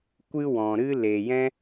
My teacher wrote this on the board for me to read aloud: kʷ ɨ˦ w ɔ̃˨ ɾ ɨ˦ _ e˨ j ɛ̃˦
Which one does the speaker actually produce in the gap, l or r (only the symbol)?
l